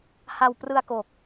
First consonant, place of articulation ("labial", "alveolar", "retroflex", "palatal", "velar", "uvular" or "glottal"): glottal